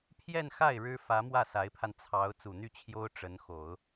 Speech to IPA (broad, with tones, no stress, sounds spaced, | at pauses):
pʰ j ɛ˥˧ n x a˥˩ ɪ̯ ɻ ɻ̩˥ f ä˧˥ m w ä˥˩ s a˧˥ ɪ̯ pʰ a˧ n t͡sʰ ɑ˧˥ ʊ̯ t͡s u˨˩ n̪ y˥˩ t͡ɕʰ j o˥ ʊ̯ ʈ͡ʂ ə˧˥ n x o˨˩˦ ʊ̯